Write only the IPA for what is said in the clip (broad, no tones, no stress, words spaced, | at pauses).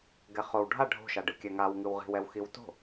ɡɛχow ɖʱa ɖʱo̤ʃaɖɯ kʲɛŋaw ŋɯwʁi̤wɛw xiwto̤